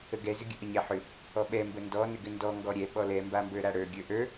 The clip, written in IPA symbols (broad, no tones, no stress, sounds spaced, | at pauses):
ə ɡ ɛ z ʏ ɡʲ ə ʔ ə ɲ ɛ ħ ʏ | ɔ ɓ ɛ m b ə n d ɔ n ʏ ɡ ʏ n d ɔ ŋ ɡ ɔ ɾʲ ɛ ɓ ɔ l ɛ m b a m b ə˞ ɾ a ɽ ə˞ ɡʲ ə˞ ʔ ə˞